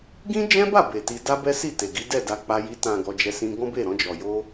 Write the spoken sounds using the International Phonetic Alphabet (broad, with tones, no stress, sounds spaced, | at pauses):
ɡ ĩ˦ d͡ʒ ɛ̃˦ b a˦˨ b e˨ t i˧ d a˦ b ɛ˦ s i˦˨ t e˨ ɡ i˨˦ d ɛ˦˨ d a˧ k͡p a˧ j i˧ t ã˨ ɡ ɔ˧ d͡ʒ ɛ˧ s ĩ˧ ɡ ɔ̃˦ b e˦˨ ɾ ɔ̃˧ d͡ʒ ɔ˨ j o˧